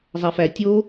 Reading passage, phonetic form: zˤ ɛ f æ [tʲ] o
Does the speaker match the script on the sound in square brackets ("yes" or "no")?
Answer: yes